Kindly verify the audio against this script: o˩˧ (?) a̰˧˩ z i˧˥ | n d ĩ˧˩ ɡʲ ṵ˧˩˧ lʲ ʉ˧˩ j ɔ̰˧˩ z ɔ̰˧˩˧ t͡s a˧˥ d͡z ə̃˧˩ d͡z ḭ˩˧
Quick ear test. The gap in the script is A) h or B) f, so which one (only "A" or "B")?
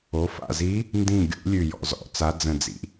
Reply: B